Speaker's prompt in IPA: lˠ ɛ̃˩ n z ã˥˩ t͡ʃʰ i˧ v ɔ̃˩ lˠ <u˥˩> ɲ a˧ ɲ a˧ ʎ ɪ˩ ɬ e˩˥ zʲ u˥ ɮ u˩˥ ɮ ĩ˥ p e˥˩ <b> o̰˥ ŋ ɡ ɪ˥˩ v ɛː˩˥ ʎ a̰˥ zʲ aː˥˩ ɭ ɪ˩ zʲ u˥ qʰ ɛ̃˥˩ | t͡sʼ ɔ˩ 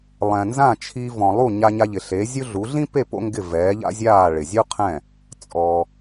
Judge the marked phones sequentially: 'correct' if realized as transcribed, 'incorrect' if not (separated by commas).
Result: correct, incorrect